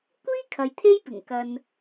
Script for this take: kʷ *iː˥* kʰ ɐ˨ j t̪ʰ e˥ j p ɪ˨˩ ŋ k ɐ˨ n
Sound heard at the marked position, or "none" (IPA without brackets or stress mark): iː˥